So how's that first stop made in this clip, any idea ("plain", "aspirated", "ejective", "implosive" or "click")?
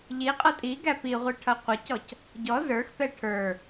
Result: ejective